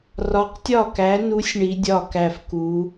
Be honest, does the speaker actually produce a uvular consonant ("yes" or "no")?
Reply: yes